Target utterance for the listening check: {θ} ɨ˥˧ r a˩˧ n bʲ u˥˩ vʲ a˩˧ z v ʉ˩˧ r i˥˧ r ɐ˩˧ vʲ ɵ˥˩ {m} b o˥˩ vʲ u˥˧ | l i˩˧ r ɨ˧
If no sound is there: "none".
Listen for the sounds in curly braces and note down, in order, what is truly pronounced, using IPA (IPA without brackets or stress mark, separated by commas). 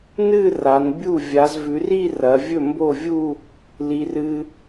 n, m